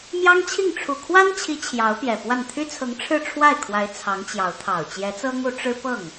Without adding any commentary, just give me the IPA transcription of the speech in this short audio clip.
m j ɑ˥ ŋ t͡ɕʰ i˥˩ ŋ ʈ͡ʂʰ u˨˩ kʰ w a˥ n t͡ɕʰ i˧˥ t͡ɕʰ j ɑ˧˥ ʊ̯ p j ɛ˨˩ p w a˥˩ n t̪ʰ y˥ t͡sʰ ɤ˧˥ ŋ ʈ͡ʂʰ ɻ̩˥˧ ʈ͡ʂʰ w a˥˩ ɪ̯ kʰ w a˧˥ ɪ̯ t͡sʰ ɑ˧˥ ŋ t͡ɕ j ɑ˧˥ ʊ̯ t̪ʰ ɑ˨˩ ʊ̯ t͡ɕ j ɛ˧˥ t͡s ɤ˥ ŋ u˧˥ ʈ͡ʂ ɻ̩˥ p ɤ˥˩ ŋ

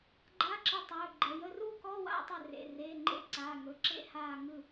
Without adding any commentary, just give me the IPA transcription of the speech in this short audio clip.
ɡ͡ǃ a˧˥˧ ǁ ɯ˧˩ tˤ ɵː˩˧˩ ɡ͡ǃ ə˩˧˩ j ə˥˧ r u˥˧ k ɔ˧˥˧ w a̰˥˧ tˤ ə˧˩ r ḛ˩˧˩ r eː˩˧˩ ŋ͡ǃ ḛ˧˥˧ ǀ aː˩˧˩ ŋ ɵ˩˧˩ ǁ ḛ˥˧ h aː˧˩ ŋ ɯ˧˩

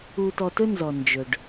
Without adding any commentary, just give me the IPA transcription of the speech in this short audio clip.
u˧ t ɔ˧ t ɵ˦ n z ɔ˨ n d͡ʒ ɵ˨ ɖ

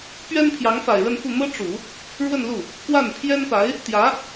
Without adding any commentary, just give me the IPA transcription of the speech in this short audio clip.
p ɥ ɛ˥ n pʰ j ɑ˧˥ ŋ f a˨˩ ɪ̯ ɻ ə˥˧ n f u˥˩ n̪ ɤ˥ ʈ͡ʂ u˨˩˦ | ɻ w ə˥˧ n l u˥˩ | k w a˥˩ n pʰ j ɛ˥ n p a˧˥ ɪ̯ | t̪ j ä˧˥

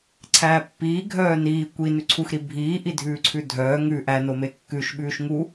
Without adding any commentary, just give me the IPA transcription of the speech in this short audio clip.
ǀʰ æː pː iː ɡʱ œː n iː kʷ i n ʉ ǀʰ u x ɾ i bʱ iː ʔ i dʱ ʉː ǀʰ ʉ dʱ œː ŋ ʉ ʔ æ n o m e kː ʉ ʃ ɓ ʉː ʃ ŋ u

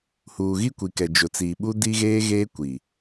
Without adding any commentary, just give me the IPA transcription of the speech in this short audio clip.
h uː˨ ɣ i˦ kʷ i˨ k ɛ˨ d͡ʒ ʊ˨ t͡s iː˨ ɓ u˦ d i˦ ɣ eː˦ ɣ eː˦ kʷ i˨

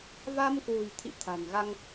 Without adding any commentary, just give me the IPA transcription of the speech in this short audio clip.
v a˧ m k w ṳ˨˩ j t̪ʰ ḭ˧˨ t̪ʰ a̤˨˩ n ɣ a˧ ŋ

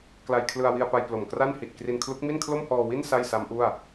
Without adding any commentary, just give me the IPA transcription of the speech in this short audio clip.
k l a˧ j kʰ l ɯ˧ a̯ w i˧ a̯ p a˧ j p l o˨˩ m k r a˥˩ n h i˨˩ t̚ k r i˧ n kʰ l u˦˥ k̚ m i˥˩ n kʰ l o˥˩ m h ɔː˧ w i˥˩ n s a˥˩ j s a˦˥ m ʔ u˥˩ a̯

